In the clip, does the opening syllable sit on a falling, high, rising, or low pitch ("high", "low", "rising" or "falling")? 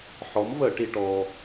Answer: rising